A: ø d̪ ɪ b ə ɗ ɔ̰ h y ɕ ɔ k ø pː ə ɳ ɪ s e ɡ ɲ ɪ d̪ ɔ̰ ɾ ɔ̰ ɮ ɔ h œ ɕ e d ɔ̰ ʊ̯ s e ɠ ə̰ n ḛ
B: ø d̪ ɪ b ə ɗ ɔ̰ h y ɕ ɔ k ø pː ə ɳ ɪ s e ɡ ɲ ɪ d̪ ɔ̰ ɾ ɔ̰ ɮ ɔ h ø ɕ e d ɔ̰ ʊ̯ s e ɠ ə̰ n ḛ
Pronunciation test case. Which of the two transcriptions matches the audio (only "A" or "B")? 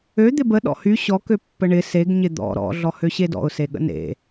B